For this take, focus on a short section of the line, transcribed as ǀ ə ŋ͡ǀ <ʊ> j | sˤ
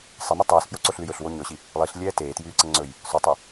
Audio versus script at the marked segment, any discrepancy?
yes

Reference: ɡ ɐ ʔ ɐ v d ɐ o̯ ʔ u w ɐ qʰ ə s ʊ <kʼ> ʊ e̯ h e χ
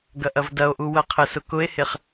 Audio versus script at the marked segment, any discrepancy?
yes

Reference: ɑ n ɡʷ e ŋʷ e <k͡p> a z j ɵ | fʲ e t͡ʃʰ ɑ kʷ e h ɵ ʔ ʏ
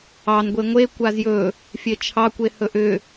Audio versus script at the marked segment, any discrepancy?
yes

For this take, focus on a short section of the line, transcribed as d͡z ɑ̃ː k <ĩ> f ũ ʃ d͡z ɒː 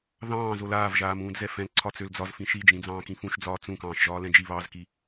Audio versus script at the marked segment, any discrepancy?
no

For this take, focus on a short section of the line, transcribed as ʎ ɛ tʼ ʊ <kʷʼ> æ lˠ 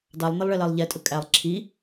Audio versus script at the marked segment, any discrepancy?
yes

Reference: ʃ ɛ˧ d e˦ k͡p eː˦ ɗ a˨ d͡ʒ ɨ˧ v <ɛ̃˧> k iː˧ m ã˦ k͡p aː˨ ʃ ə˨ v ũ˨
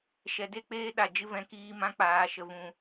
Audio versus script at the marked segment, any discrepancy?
no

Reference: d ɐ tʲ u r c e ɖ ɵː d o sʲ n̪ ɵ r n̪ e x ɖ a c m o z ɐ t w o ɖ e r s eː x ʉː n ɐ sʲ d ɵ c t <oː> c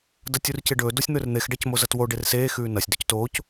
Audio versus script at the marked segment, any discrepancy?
no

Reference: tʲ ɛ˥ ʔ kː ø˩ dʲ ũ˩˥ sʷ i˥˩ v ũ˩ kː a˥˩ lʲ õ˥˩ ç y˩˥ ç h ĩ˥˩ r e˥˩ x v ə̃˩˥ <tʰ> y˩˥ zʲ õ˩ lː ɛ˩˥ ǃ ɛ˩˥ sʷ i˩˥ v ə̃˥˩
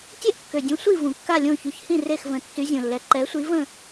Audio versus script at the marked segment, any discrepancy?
yes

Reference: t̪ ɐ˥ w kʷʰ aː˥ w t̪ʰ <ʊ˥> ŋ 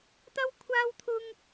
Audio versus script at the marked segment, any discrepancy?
no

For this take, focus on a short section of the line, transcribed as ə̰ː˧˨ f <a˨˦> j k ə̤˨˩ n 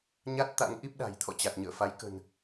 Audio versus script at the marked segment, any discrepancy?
no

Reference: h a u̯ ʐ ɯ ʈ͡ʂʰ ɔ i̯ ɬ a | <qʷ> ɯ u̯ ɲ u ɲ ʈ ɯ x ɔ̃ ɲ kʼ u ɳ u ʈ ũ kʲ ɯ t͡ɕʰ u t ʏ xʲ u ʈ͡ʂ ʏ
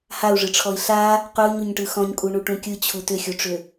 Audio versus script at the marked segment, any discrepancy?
no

